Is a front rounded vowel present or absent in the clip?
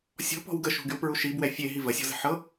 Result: present